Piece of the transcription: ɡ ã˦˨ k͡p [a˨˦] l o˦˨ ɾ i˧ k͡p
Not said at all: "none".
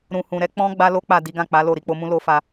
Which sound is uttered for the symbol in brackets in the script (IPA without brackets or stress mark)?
a˨˦